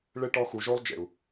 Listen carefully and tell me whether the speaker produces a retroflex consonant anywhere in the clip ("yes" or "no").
yes